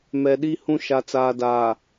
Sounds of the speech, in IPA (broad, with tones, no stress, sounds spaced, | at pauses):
m ɛ˨ ɗ i˦ h ũ˦ ʃ a˨ t͡s aː˨ d aː˨